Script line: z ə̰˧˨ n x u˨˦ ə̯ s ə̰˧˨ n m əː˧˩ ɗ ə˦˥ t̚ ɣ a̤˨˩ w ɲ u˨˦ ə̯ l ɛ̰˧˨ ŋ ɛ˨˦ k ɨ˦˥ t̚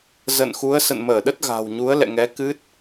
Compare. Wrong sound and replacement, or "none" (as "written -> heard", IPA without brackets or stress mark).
none